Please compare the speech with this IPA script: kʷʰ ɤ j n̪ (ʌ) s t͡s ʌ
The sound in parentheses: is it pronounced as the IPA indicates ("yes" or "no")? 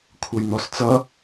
no